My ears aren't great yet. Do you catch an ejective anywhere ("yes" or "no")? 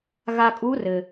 yes